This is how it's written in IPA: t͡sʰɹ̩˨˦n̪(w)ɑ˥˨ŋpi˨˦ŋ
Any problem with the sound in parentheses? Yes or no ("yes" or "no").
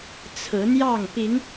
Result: yes